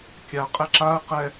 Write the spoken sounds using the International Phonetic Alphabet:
kʲ a qʼ ɛ ǁ a ə̯ q ɛ

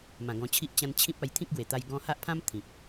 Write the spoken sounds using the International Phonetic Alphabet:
m ã˨˩ ɡ ɔ̃˧ t͡ɕʰ i˦ ʔ t͡ɕ ã˧ n t͡ɕʰ ĩ˦ p̚ a˧ j t̪ʰ ĩ˦ k̚ ɡ w e˨˩ t̪ a˧ j ɡ ɔ̃˧ h a˦ ʔ pʰ ã˦ m t̪ʰ ĩ˨ p̚

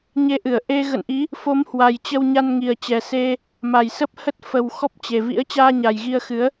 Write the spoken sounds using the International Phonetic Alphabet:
ɲ e˧ ʔ ɨ˧˩ ə̯ ʔ e˧ ɣ ə̰˧˨ n ʔ i˨˦ | f o˨˦ m h w a˨˩ j t͡ɕ ə˧ w ɲ a˧ n ŋ i˨˩ ə̯ t͡ɕ ɛ˨˩ s e˧ | m a˨˩ j s ə˦˥ p̚ h ə˦˥ t̚ f ə˧ w x ɔ˦˥ p̚ t͡ɕ e˨˩ v ḭ˧˥ ə̯ t͡ɕ aː˧ ɲ a˨˩ j ɣ i˧ ə̯ x ɨ˨˦ ə̯

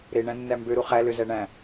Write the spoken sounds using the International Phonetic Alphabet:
ɾ e ɳ æ̃ nː æ m b ø ɾ u χ æ l ø z æ ɳ æ̃

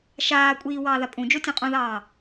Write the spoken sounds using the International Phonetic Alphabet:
ʃ aː kʷʼ iː w ɑː ð a pʼ ũ d͡ʒ o tʲ õ qʼ ũ ð ɑː

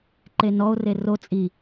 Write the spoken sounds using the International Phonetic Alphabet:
ǃ e n ɔ o̯ r e r o t͡sʼ i

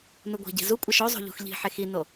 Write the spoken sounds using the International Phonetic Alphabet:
n u ɡʷ i̤ ɟ i̤ z u kʷʼ ɐ ʃ o zˤ o̤ ʎ ṳ x ʎ i̤ ħ e x i n o

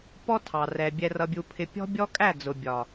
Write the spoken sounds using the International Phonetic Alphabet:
p ɔ˦ tʰ ɑ˨ r ɛ˨ bʲ ɛ˨ r ʌ˨ bʲ u˨ pʰ ɪ˨ pʲ ɔ̤˦ bʲ ɔ˦ kʼ æ˦˨ d͡z ʊ˨ bʲ ɒ˨

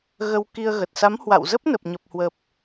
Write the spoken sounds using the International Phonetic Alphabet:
ɣ ə˧ w k i˧ ə̯ ɣ ə˨˩ t̚ s a˨˦ m h w a̰˧˨ w z ə˦˥ p̚ n ə˨˩ p̚ ɲ ə˨˩ p̚ h w ə˨˩ p̚

